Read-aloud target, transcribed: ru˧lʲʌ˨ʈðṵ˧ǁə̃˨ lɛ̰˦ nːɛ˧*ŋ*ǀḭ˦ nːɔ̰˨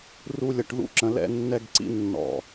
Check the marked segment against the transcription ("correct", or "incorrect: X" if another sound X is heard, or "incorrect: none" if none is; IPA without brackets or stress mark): incorrect: ɡ